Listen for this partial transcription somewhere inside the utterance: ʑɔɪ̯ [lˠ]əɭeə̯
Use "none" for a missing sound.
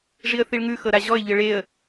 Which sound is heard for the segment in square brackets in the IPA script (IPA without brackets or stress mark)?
ʎ